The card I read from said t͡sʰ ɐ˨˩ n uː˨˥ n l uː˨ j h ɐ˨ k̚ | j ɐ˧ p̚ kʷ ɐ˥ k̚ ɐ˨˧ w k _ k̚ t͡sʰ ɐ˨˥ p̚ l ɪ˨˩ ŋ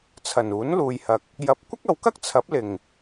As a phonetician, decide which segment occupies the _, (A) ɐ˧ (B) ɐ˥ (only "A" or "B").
B